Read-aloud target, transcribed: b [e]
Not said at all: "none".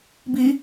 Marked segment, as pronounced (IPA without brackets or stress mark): i